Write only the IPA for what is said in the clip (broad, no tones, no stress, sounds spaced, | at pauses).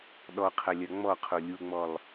ɗ ɔ qʰ ɐ lʲ ɐ ŋ͡m ɔ qʰ o lʲ u ŋ͡m ɔ lˠ